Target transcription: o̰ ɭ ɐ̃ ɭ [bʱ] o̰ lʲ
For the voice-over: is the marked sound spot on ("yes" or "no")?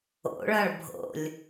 yes